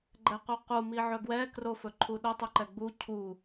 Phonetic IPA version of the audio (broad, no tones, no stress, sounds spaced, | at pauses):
ɡ͡ǃ ɛ q u q u m i ʕ ɵ ɡ w ɛ k r o f ɵ ǃʰ u ɗ ɵ tˤ ɵ ǃ ɛ ɡ͡b u cʰ u